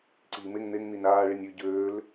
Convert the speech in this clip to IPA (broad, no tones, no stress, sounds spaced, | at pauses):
ǀ iː m e ŋ n̪ e ŋ n̪ i n aː ɭ i nʲ ø ɟ øː l